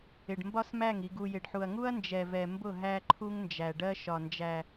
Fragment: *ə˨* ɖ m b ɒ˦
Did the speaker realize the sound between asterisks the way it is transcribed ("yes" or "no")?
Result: no